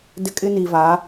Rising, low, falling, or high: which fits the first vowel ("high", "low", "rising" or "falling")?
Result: high